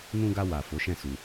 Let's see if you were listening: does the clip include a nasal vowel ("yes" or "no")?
yes